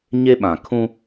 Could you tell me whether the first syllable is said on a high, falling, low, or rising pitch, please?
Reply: high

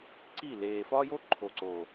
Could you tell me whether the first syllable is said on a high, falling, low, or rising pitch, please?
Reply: falling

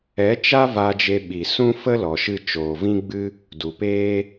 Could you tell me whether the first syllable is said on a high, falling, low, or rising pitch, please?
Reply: rising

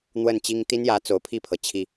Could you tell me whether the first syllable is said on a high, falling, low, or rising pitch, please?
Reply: falling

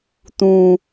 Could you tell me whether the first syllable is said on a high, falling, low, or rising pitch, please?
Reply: low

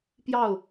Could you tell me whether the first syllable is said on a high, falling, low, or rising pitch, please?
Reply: falling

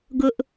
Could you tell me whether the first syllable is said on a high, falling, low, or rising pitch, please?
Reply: high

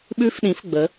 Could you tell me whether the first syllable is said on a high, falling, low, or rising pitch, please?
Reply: rising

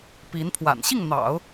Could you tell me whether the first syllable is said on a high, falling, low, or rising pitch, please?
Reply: rising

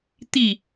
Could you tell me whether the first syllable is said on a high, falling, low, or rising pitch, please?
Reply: falling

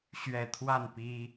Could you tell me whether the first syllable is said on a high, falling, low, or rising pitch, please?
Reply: low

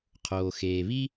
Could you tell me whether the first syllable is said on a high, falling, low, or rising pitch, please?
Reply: low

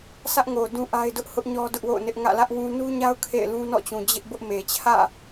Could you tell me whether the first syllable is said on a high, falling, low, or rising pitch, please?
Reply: high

